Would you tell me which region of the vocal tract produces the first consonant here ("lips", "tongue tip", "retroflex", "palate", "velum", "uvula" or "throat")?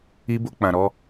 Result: lips